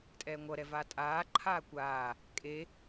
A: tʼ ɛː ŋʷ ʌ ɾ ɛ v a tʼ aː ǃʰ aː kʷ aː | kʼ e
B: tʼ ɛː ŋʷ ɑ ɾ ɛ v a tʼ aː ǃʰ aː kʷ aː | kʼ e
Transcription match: A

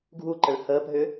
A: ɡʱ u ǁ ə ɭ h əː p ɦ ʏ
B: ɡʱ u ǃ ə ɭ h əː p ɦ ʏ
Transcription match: B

